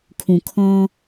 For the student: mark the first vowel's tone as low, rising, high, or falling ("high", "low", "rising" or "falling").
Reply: low